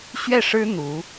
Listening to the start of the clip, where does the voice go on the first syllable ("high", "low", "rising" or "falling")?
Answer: falling